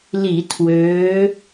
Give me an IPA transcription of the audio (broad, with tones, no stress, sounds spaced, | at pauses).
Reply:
l i˧˩˧ tʰ w øː˨˦